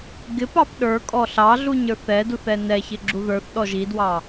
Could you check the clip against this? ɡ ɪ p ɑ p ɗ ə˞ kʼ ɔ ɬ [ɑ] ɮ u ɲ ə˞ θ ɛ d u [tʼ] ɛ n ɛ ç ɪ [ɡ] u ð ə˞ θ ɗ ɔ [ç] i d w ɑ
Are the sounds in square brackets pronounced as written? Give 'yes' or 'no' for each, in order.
yes, no, no, no

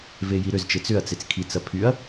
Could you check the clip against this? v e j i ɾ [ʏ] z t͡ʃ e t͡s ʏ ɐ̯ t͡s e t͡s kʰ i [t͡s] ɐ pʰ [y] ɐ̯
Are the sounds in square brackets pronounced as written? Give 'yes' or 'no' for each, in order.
yes, yes, yes

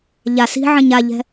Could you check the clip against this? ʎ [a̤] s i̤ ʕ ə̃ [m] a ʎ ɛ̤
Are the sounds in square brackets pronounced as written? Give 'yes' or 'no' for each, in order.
no, no

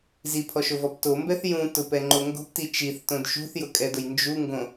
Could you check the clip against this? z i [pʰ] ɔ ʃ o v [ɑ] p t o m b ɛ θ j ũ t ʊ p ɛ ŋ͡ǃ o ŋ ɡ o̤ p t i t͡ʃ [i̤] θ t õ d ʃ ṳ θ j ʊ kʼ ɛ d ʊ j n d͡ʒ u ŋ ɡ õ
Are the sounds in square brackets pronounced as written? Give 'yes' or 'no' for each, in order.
yes, no, no

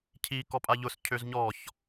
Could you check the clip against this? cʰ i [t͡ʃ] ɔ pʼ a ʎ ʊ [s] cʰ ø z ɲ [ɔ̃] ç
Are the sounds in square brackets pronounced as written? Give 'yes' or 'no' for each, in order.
no, yes, no

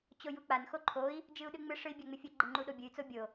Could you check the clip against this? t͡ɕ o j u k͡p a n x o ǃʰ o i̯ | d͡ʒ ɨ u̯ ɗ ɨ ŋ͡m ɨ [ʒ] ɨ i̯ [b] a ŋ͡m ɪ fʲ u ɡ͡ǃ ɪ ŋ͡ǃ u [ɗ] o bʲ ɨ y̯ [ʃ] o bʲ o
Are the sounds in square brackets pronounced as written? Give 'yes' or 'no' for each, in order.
no, no, yes, no

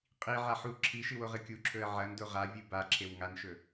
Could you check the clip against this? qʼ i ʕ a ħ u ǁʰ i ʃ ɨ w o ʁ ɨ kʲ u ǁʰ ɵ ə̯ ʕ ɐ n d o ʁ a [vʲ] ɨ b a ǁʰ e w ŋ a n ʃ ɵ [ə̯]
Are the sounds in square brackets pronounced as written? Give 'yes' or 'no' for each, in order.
yes, no

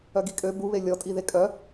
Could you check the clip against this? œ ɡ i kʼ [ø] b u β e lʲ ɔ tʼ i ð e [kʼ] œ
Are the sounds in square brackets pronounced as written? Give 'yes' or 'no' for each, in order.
yes, yes

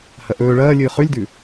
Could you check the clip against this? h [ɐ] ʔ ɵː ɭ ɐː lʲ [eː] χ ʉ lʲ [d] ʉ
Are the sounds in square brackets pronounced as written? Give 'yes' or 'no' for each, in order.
yes, no, yes

